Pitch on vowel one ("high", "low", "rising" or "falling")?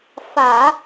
low